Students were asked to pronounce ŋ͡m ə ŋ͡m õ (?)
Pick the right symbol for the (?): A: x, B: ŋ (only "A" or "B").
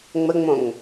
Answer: B